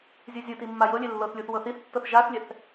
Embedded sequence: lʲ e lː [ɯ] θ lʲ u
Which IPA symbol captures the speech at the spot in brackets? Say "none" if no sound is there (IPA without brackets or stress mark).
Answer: ɤ